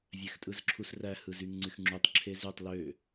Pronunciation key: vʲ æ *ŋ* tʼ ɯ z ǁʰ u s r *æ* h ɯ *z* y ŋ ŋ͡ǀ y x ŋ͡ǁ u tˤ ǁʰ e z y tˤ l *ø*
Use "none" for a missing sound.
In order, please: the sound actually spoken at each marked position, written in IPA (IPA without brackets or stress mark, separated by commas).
x, æ, z, ø